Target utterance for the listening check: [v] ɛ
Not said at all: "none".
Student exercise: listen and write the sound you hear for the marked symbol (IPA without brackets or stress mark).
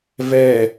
v